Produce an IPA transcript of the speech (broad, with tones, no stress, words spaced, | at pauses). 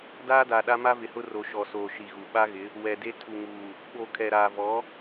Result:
daː˦da˨ɗa˦ ma˦vɪ˨hʊ˦ ro˨ʃɔ˨soː˨ ʃi˨ɣu˨ ɓa˦ɣɪ˨˦ | wɛ˨de˦ tʰu˨ŋuː˨ | ɓo˨ kʰɛ˨ɾaː˨vɔ˨˦